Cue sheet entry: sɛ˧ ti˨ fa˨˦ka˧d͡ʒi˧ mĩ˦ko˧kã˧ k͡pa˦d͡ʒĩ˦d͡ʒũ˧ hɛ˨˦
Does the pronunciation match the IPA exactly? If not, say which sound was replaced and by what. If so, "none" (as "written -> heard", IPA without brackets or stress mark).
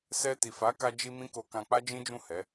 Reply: ũ˧ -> ũ˦˨